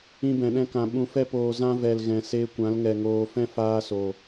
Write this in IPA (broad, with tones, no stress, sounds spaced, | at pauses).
ĩ˧ b ɛ̃˨ ɗ ɛ̃˧ k ã˨ ɓ ũ˧ f ɛ˦ p oː˧ z ã˧ v ɛ˨ l ɣ ɛ̃˨ s e˧ kʷ ã˨˦ l ŋ ɛ˨ ŋ oː˨ f ɛ̃˦ f aː˧ s o˨